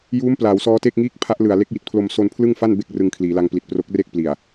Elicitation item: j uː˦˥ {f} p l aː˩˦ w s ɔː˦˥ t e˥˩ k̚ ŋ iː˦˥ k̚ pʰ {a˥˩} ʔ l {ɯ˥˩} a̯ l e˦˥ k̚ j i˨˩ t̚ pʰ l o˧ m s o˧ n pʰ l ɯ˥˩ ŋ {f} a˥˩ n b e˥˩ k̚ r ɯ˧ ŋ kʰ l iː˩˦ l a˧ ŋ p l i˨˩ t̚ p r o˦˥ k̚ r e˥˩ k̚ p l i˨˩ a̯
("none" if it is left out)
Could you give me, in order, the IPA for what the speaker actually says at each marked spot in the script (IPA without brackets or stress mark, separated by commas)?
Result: m, a˦˥, ɯ˨˩, f